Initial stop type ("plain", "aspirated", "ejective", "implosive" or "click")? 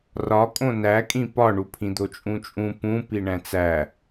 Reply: ejective